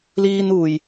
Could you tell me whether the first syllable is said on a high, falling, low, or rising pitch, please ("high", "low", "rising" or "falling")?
high